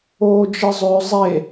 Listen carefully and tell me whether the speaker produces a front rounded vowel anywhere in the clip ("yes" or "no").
yes